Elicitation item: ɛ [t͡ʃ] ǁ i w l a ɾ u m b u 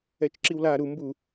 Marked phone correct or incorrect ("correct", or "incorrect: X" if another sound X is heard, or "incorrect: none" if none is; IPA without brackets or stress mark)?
correct